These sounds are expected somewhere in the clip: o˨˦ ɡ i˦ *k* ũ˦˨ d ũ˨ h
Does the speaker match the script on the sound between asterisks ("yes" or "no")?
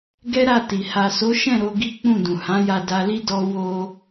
no